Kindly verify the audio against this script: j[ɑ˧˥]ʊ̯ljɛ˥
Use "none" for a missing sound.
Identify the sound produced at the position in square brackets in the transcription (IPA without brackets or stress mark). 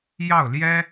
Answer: ɑ˥˩